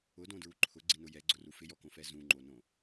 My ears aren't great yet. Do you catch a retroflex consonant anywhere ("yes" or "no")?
no